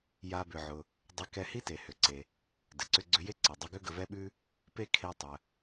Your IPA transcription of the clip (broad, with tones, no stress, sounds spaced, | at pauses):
j a˧ b ʏ˩ ʕ ʊ˩ | dˤ ʏ˧ k ɛ˧ h i˥ t e˩ h ʏ˩ ǀ e˩ | d ɘ˩ ǀ ʏ˧ ɡ͡ǀ ʏ˧ j e˥ ǀ ɘ˩ dˤ ʊ˧ ɡ ʏ˥ ɡ ə˧ v ɛ˥ ɓ ʉ˥ | p e˥ kʰ e˧ tˤ ə˩